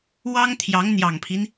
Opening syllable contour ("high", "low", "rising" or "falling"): high